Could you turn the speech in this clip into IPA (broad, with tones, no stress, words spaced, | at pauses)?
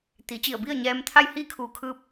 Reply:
t̪i˩˧ t͡ɕi˧˩ə̯bi˥˨ə̯ɲɛː˧mt̪ʰa˥˨j hiː˥˨kʰuː˧˩kʰɯː˧p̚